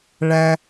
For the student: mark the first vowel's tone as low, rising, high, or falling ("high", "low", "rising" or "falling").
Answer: high